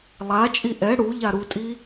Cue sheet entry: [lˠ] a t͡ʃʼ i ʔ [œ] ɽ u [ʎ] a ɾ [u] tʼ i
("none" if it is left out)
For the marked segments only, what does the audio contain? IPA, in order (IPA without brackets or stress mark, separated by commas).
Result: lˠ, ɛ, ʎ, u